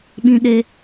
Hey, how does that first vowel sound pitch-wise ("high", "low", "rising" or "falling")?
high